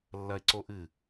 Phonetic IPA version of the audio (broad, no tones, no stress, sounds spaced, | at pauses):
lː ɐ e̯ ǀ o ʔ ɨ